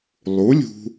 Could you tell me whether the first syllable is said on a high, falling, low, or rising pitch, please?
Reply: rising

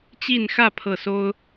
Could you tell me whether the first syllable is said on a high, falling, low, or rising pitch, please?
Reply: falling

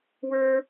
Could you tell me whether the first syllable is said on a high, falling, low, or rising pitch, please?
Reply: high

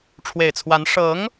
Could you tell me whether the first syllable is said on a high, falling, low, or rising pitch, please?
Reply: low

